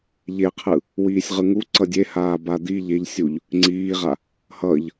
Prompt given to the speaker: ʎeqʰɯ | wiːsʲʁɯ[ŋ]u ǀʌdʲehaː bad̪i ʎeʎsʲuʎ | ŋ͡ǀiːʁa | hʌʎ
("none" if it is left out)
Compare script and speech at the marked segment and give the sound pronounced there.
ŋ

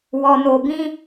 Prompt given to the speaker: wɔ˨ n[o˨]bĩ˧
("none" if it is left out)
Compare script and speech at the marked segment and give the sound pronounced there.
o˨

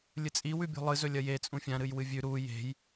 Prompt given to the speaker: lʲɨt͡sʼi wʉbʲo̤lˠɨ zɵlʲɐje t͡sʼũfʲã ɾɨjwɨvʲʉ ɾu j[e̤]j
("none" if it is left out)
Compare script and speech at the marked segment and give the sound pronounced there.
e̤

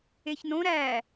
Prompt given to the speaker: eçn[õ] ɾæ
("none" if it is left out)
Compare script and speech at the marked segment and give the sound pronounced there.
õ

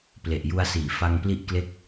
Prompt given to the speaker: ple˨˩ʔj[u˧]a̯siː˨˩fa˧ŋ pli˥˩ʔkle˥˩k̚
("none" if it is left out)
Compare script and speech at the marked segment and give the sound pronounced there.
u˧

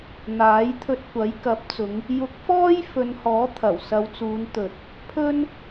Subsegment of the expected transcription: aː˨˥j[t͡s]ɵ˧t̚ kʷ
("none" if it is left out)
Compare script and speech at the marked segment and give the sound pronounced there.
t̪ʰ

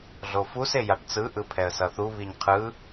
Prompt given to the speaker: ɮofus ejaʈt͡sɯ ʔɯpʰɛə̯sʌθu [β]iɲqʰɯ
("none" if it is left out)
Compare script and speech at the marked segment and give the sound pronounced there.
β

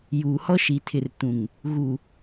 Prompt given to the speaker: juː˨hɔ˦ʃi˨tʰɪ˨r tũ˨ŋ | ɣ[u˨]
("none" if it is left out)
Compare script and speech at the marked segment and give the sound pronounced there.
u˨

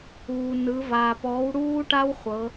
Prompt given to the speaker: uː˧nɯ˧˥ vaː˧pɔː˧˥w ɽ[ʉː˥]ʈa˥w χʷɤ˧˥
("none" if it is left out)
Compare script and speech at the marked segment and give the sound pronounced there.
uː˥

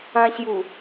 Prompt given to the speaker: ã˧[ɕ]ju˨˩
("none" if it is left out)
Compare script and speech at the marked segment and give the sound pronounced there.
ɕ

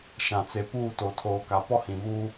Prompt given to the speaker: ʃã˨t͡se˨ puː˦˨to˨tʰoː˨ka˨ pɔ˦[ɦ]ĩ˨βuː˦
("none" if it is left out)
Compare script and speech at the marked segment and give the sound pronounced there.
h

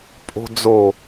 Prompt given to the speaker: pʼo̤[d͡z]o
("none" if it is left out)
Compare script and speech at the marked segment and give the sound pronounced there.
d͡z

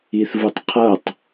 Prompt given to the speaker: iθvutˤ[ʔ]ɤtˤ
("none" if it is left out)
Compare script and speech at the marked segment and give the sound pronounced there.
qʰ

